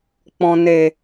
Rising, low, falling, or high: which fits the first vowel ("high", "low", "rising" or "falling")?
low